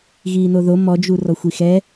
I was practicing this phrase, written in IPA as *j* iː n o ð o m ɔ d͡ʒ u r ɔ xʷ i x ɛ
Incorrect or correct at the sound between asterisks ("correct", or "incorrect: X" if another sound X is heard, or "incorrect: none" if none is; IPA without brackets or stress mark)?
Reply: incorrect: ɣ